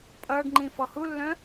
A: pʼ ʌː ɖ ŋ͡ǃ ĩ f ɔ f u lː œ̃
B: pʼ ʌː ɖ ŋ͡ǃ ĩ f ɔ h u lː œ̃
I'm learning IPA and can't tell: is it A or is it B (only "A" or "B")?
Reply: B